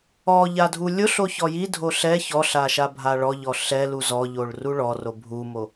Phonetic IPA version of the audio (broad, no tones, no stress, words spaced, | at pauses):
ɔʎa dʱulʲʊɬo çɔjidʱo ɬɛ çɔɬa ʃabʱaɭɔʎɔ ɬɛ luzɔʎoɭ ruɭɔro bʱumo